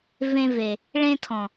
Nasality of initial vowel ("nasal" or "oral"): nasal